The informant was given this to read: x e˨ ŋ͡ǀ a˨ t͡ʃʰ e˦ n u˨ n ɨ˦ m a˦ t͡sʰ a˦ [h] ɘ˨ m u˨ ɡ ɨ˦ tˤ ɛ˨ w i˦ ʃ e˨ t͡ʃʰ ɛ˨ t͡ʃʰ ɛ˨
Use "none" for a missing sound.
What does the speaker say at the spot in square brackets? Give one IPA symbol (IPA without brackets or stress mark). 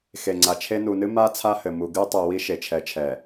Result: h